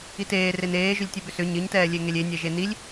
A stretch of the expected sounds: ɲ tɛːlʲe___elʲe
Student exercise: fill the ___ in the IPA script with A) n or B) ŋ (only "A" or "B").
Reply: B